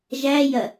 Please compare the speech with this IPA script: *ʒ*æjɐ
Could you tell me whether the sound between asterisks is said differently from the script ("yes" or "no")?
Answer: no